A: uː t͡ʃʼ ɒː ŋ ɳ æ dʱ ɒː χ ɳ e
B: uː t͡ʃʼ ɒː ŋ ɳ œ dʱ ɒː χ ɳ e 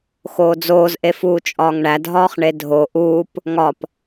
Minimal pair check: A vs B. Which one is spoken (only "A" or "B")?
A